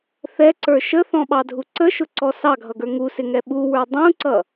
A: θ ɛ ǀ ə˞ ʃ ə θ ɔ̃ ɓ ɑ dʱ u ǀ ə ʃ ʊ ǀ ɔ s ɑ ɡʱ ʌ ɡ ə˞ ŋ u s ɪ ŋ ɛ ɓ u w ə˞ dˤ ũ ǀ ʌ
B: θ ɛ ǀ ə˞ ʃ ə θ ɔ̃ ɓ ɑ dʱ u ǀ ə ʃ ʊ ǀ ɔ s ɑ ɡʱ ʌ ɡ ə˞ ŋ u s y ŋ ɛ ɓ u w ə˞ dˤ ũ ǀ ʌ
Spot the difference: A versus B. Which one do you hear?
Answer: A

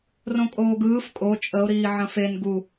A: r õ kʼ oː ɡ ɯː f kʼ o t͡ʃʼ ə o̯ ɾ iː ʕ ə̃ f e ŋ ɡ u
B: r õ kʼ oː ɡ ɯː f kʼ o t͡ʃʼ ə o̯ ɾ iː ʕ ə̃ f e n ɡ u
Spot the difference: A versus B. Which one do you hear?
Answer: B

